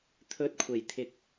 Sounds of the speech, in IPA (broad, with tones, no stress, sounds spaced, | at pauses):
t̪ʰ ɵ˧ t̚ kʷʰ e˨˩ j t̪ʰ ɪ˨ k̚